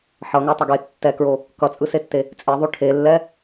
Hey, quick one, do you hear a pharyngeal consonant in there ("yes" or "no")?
yes